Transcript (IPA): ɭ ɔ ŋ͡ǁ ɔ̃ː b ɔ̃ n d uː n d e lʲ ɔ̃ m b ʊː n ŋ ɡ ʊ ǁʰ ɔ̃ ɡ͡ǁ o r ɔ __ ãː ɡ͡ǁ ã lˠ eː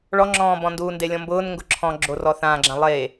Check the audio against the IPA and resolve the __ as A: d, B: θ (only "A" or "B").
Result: B